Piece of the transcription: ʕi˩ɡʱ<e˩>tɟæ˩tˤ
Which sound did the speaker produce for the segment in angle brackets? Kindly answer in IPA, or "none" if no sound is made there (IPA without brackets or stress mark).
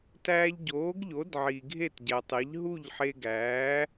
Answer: e˥˩